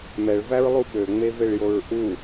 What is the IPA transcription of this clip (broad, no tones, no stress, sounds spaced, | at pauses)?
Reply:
m ɛ ɭ v æ ɹ lˠ u ɓ ø ŋ͡m e v e ɭ j o ɹ ʔ u